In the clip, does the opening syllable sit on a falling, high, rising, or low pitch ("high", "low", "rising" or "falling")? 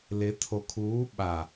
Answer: rising